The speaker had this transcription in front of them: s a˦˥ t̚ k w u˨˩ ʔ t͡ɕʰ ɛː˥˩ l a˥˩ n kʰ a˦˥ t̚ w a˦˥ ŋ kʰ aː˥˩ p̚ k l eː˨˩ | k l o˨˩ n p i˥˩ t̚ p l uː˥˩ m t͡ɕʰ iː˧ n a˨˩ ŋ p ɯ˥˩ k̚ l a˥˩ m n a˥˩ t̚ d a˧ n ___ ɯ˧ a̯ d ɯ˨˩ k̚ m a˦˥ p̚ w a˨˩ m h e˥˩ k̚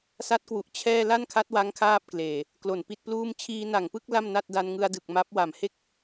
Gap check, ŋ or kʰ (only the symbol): ŋ